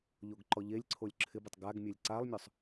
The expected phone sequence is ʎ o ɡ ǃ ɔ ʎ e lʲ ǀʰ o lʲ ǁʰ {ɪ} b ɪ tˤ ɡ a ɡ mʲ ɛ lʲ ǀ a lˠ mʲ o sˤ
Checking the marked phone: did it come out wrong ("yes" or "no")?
no